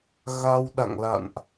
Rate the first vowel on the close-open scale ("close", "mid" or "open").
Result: open